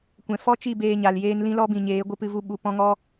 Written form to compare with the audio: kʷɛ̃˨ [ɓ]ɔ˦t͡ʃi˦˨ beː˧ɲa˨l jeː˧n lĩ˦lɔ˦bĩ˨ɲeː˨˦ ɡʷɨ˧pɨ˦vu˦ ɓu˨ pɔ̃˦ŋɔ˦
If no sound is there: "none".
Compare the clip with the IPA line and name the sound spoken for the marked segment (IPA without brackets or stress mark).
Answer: f